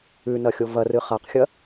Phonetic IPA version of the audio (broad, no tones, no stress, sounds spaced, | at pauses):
ʉ n ɐ xʲ o v ɐ r ɨ χ a q xʲ ɐ